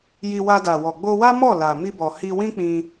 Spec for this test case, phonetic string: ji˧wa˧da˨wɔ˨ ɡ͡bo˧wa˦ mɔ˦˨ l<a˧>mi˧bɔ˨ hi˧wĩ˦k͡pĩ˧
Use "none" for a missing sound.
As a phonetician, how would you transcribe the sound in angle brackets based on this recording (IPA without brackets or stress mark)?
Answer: a˨